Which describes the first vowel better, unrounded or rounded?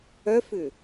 rounded